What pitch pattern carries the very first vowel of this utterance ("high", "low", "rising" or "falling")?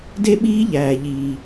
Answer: high